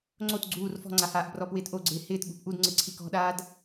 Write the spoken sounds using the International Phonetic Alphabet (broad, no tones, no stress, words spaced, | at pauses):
ŋ͡ǀot ɡ͡ǀuːr fɔ̤ŋ͡ǀahaːʔ brɔpwɪːtʔo ɡ͡ǀɪːhɪːt ɠṳpʔudŋ͡ǀɪ ǀʰikɔ̤ɗaːd